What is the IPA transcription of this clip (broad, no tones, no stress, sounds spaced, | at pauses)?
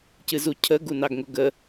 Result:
c ɨ z u cʰ ə ɡ u n ɑ ɡ ŋ ʊ ɡ ə